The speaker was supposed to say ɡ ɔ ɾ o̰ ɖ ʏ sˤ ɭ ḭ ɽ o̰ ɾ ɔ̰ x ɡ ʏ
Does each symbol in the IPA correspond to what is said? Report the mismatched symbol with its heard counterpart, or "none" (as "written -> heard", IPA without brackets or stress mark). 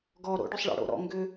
x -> ŋ